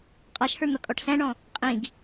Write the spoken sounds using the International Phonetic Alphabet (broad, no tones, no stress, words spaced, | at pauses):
qʼɑʃhə˞ n̪ʌkʼɔʈsæ̃ɳɔ̃ | qʼĩɡ